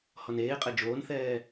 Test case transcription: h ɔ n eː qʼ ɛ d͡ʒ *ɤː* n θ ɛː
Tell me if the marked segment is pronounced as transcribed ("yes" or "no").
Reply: no